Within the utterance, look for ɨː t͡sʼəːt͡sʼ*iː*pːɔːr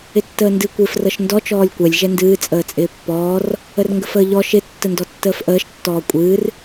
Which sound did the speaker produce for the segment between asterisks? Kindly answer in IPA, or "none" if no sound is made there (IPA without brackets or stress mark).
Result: ɪː